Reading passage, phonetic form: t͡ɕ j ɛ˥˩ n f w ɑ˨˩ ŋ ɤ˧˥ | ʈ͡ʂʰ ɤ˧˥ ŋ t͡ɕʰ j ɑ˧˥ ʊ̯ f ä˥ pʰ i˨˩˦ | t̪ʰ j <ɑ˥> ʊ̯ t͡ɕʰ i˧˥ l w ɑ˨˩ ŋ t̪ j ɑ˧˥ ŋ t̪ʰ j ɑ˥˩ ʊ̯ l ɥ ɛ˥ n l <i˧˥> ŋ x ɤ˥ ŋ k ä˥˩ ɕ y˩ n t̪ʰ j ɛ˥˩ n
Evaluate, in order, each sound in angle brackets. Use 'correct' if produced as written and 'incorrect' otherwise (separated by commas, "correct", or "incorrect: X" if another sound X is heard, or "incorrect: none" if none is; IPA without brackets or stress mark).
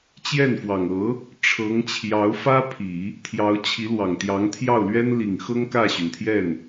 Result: incorrect: ɑ˧˥, incorrect: i˨˩